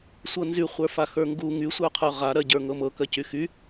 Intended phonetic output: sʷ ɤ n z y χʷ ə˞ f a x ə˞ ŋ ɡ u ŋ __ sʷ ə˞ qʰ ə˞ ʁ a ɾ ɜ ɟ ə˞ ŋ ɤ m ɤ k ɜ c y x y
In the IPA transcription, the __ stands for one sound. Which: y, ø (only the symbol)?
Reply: y